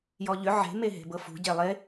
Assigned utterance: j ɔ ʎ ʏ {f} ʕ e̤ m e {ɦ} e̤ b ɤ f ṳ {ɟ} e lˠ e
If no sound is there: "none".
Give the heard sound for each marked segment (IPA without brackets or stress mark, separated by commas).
none, ɦ, ɟ